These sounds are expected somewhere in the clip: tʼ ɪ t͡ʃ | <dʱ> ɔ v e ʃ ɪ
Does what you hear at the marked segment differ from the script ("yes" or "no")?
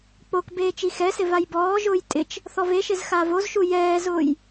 yes